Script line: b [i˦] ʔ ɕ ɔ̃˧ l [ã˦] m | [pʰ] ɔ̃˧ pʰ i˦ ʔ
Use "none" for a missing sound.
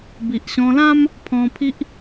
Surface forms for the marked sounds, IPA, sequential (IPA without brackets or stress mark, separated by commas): i˨, ã˦, pʰ